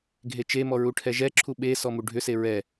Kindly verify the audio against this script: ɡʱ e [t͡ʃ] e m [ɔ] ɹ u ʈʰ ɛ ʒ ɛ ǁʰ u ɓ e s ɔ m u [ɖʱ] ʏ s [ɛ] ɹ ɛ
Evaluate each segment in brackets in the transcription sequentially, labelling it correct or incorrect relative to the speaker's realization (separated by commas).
correct, correct, correct, incorrect